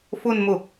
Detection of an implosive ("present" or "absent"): absent